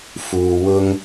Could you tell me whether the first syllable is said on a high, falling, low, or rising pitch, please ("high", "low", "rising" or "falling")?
low